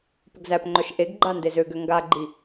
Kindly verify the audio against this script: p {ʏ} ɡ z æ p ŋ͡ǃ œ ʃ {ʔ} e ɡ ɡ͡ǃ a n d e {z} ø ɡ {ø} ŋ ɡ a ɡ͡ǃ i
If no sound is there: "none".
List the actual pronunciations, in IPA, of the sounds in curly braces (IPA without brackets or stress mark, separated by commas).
ʏ, ʔ, z, ø